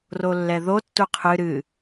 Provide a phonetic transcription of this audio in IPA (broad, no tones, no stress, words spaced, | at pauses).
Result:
rolːɛðo tːuqʰɨ ɾɨ